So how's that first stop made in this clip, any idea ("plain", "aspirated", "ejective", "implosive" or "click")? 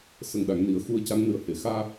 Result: implosive